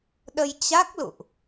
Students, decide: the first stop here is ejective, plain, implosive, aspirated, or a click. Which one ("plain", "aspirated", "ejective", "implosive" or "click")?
implosive